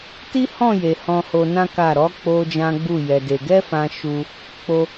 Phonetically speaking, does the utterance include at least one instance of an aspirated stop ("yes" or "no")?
no